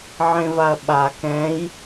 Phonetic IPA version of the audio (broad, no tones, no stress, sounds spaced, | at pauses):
ʕ ẽ v a ɐ̯ ɓ a k ɛ̃ j